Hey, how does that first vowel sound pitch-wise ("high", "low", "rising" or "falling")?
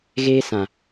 high